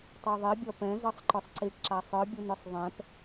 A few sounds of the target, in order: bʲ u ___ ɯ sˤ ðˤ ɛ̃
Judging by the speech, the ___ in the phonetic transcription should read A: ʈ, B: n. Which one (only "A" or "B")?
B